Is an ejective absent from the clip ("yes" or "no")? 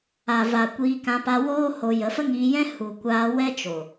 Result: yes